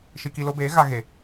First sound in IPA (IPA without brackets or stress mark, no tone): ʃ